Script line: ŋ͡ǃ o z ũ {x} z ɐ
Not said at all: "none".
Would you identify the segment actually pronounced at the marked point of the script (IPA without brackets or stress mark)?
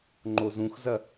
x